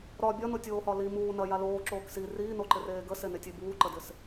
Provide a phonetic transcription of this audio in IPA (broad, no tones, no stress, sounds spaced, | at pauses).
ɾ ɒ bʲ ɒ n o tʲ oː h ɒ l i m uː n ɐ j a l oː ǁ oː k s i r iː n o ǃ ɪ r eː ɡ ə s e n e tʲ e b uː ǃ ə d ɪ s